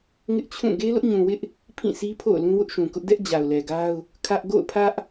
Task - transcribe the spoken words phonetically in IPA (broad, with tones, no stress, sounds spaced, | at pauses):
ŋ ɪ˦ ʔ t͡ɕʰ ũ˦˨ ɡ e˦ l ʊ˦ ʔ ɲ ũ˨ w ɪ˦ ʔ | pʰ ĩ˦˨ sʰ i˦ pʰ o̰˦˨ ʊ̯ l ũ˦ w ʊ˦ ʔ ʃ ũ˨ k ʊ˦ ʔ d ɛ˦ ʔ d͡ʑ a˨ ʊ̯ l ɛ˨ ɡ a˦ ʊ̯ | kʰ ä˦ ʔ ɡ o̰˦˨ ʊ̯ pʰ ä˦ ʔ